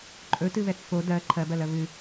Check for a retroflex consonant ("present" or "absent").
absent